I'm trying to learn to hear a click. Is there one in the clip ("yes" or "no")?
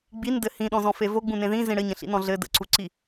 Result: yes